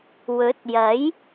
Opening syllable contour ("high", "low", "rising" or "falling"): rising